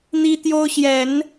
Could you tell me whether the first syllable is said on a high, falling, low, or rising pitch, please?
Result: high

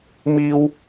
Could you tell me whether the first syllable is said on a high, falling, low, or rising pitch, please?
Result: high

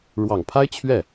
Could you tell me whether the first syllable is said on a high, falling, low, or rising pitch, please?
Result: low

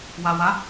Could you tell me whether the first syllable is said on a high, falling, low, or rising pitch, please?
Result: low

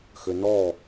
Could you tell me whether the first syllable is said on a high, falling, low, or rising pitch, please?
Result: low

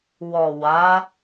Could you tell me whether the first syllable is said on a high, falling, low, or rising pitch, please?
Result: low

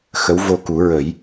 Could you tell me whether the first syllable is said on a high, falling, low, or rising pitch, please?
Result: rising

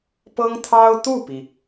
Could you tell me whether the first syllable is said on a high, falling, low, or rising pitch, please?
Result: high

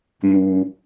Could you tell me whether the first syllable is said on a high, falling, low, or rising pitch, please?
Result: low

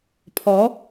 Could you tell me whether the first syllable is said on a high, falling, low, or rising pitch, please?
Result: rising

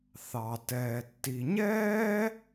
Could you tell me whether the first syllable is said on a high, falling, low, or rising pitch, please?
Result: low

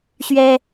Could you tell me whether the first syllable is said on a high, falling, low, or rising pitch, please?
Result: high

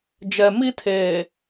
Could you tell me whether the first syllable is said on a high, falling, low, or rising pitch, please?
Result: low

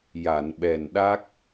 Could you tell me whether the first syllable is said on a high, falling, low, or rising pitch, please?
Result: low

